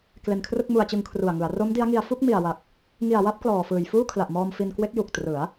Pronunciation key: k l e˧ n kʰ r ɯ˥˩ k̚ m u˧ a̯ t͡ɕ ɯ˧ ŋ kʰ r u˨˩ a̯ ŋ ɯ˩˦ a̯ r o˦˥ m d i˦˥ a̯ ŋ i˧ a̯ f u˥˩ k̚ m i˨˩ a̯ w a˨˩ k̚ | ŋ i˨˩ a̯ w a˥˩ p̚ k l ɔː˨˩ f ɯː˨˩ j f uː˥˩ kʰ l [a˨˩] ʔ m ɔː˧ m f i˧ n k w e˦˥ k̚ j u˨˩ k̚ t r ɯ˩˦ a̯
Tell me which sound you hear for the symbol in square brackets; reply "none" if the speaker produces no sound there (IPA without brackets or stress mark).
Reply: a˨˩